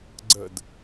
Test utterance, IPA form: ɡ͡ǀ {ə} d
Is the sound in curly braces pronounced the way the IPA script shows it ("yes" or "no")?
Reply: yes